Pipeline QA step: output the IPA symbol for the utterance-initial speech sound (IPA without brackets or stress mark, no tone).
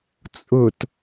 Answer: t͡sʼ